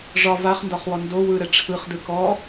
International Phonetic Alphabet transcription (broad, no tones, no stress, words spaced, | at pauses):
ʐɒ vaχndɒχwɔ ndo wɯɾɛ ʈ͡ʂʰɯχdɯ kɔ